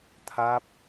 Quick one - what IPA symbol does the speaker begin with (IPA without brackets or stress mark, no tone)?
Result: t̪ʰ